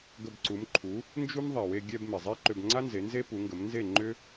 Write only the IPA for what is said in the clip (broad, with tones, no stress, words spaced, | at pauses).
ɡə˧bǀu˩˥mǃʰu˩˥ | nd͡ʒu˥m ðˤɛ˩we˧ɡʲɛ˧b me˩zˤe˥ǃʏ˧b ŋ͡ǀa˥nze˩˥ nze˥pu˩˥ŋɡə˩˥m nze˥˩ ŋ͡ǃʏ˥